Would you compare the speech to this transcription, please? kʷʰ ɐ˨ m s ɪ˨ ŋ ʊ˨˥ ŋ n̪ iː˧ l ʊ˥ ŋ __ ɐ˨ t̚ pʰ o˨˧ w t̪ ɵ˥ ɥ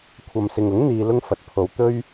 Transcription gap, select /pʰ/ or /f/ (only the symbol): f